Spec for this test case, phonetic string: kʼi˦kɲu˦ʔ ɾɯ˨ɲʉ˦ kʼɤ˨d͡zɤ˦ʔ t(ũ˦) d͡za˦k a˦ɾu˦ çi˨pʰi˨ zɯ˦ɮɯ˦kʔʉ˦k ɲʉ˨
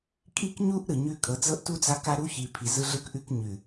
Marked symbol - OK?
no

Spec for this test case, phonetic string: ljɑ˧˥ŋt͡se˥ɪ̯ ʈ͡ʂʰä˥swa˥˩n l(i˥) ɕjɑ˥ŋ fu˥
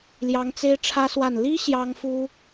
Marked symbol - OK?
yes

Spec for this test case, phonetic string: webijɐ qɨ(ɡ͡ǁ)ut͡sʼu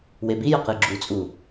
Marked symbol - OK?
yes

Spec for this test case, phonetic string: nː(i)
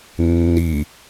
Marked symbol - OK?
yes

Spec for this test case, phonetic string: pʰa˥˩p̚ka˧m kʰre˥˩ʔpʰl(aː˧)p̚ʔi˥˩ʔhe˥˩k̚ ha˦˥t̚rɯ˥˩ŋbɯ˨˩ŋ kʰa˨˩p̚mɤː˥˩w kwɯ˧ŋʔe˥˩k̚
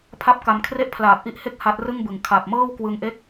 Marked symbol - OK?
no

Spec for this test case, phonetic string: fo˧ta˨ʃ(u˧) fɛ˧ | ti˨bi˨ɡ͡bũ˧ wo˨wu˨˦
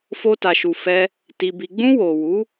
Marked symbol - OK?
no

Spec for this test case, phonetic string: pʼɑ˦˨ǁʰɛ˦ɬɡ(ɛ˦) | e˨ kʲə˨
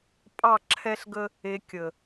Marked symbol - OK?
no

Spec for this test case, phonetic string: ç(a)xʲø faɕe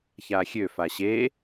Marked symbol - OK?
yes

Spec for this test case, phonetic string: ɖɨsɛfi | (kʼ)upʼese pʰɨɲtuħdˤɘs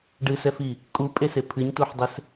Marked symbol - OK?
yes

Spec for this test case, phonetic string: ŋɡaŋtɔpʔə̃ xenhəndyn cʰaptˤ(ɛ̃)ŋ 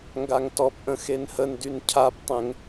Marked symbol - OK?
yes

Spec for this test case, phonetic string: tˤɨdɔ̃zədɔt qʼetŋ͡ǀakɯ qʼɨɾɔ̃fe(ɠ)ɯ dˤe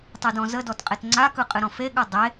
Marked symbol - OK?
yes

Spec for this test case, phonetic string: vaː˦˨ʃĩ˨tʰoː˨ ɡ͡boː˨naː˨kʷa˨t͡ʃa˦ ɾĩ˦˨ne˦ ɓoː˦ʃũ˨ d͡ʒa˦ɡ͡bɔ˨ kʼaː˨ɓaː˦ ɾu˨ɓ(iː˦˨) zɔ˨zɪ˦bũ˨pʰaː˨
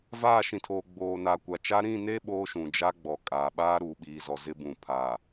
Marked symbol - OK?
no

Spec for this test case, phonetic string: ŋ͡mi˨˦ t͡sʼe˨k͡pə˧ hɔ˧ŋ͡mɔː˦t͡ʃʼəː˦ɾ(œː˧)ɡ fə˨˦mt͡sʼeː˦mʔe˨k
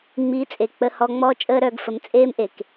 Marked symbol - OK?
yes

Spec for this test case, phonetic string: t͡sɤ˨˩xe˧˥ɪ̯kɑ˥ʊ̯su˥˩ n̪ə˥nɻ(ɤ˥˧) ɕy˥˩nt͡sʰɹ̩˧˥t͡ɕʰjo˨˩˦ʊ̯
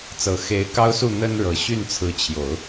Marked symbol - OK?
no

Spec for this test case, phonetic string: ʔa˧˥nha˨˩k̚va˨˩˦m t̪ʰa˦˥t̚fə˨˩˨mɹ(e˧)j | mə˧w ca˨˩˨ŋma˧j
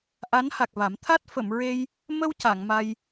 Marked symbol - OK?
yes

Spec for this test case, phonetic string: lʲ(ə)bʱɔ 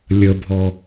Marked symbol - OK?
yes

